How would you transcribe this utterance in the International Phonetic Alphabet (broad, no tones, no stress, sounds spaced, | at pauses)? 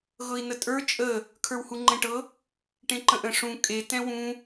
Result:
ɣ ɤ i̯ n ə tʼ ə˞ t͡ʃʼ ə | kʰ ə˞ w h u ŋ͡ǃ ɛ̃ ʈ ɤ | ʈ ẽ ǃ ə̃ ʔ ə̃ ʂ ũ kʼ e t ɛ̃ w ũ